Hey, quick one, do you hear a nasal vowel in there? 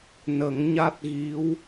no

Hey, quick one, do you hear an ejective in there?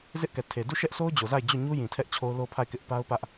no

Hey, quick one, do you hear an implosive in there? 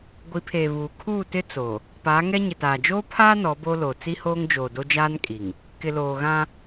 no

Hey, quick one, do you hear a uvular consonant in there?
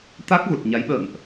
no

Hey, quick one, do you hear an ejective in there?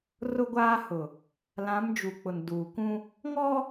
no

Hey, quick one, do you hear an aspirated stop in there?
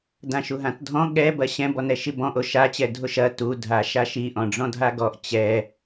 no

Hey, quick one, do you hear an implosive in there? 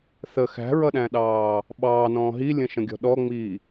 yes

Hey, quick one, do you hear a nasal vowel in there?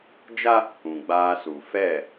yes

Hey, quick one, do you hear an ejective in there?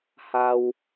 no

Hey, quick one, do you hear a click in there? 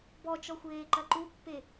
yes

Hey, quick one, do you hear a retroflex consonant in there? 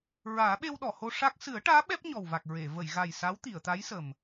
yes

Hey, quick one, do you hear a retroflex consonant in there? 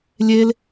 no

